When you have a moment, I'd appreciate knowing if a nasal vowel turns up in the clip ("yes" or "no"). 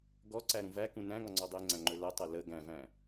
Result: yes